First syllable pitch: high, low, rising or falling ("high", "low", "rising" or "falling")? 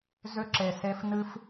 high